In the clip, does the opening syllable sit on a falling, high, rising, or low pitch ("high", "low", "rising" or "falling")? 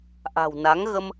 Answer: low